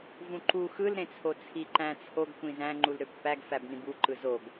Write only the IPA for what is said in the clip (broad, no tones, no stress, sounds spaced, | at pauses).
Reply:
v ũ ǃ u x ɯ l ɾ ẽ t͡sʰ o t͡sʰ i ǃ æ̃ t͡sʰ o ɡ kʷ ĩ z æ̃ ŋ͡ǃ u l ɾ ø pː æ ɡ f æ b n ĩ b u ǃ ɯ z o ɡ